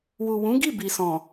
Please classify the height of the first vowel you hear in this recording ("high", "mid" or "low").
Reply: high